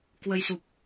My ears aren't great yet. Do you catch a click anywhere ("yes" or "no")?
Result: no